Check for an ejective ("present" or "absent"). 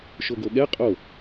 present